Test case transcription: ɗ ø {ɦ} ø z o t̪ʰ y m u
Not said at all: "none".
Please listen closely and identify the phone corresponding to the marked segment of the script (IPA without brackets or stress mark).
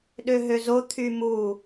ɦ